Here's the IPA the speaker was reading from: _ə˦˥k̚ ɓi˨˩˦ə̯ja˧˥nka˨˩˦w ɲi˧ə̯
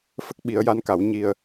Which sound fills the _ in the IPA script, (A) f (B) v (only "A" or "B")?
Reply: A